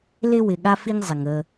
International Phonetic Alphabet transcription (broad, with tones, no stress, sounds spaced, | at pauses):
l ɪ˦ w ɪ˨ ɠ a˦ f i˦ ŋ zˤ ɪ˨ ŋ ə˦